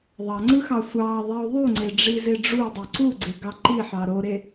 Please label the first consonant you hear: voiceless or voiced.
voiced